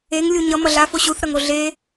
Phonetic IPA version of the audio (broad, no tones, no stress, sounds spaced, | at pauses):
e ŋ lʲ u ɲ ʌ m ʌ ɮ a f o ɕ u θ ɾ ʌ ŋ o ɮ e